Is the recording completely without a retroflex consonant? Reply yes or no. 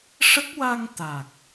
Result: no